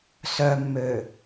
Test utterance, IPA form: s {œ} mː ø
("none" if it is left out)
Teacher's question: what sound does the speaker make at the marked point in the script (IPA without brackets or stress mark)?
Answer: œ